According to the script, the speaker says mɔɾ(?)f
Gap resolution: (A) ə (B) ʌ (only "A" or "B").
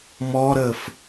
A